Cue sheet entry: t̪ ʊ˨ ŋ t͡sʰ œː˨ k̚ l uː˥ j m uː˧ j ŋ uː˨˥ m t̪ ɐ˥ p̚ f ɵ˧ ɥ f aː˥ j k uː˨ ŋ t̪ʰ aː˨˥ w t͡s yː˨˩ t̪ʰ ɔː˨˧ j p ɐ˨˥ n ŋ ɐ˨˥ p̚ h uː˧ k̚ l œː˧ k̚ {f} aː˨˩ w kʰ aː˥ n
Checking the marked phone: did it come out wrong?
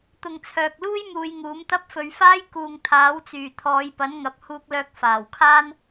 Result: no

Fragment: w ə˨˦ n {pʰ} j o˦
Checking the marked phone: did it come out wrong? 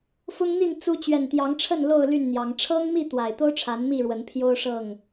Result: no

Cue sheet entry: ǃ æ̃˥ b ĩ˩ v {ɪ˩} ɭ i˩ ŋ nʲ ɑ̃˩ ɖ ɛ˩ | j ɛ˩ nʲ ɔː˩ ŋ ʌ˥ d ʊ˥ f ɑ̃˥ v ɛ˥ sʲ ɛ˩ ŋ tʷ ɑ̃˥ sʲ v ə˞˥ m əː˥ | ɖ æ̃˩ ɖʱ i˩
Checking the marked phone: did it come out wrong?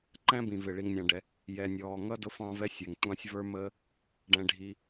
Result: no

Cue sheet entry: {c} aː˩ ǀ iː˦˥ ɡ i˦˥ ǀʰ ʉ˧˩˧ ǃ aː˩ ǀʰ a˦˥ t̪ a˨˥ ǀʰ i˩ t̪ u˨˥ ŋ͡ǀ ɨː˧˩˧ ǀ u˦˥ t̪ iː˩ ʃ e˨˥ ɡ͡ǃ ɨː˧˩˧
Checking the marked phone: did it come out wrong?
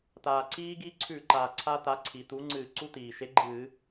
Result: yes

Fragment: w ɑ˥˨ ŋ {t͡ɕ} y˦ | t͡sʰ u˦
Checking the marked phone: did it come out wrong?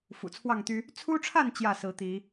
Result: yes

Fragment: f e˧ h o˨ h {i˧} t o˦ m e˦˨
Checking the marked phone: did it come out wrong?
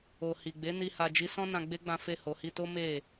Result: no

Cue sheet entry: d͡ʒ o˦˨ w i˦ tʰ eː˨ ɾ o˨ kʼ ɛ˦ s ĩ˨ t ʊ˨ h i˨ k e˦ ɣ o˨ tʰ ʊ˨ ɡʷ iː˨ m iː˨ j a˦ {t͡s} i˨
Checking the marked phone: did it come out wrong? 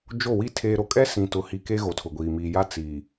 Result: no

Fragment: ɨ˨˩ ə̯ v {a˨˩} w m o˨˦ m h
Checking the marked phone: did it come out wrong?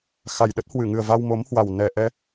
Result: yes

